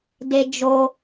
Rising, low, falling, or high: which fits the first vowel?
high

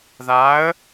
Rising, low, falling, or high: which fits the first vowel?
rising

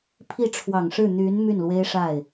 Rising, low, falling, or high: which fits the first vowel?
falling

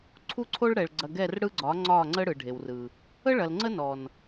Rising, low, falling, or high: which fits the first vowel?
falling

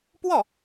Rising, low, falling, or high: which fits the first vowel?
falling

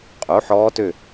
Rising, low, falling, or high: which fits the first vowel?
rising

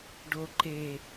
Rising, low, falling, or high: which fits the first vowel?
low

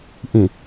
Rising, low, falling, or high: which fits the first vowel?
low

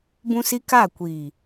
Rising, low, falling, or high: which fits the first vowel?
high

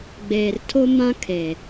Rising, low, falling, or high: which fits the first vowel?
low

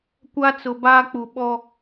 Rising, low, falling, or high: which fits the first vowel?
high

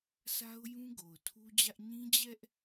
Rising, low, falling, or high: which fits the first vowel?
high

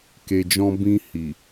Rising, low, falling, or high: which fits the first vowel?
low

